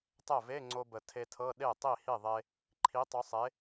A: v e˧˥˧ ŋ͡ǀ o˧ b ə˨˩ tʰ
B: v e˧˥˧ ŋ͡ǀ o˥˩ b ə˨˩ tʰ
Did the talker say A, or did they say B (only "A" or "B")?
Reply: A